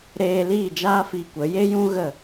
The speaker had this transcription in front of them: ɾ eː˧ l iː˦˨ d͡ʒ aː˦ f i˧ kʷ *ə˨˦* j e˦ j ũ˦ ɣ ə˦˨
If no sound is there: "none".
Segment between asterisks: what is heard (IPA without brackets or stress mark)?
ə˨˦